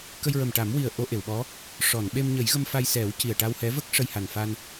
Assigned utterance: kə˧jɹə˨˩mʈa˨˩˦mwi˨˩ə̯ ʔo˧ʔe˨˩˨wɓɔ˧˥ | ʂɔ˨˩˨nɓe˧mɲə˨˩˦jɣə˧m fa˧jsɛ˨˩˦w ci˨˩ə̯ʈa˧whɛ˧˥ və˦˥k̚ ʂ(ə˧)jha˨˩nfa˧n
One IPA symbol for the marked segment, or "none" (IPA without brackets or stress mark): ə˧